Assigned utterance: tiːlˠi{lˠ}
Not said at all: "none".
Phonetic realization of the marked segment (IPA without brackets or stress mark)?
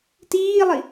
none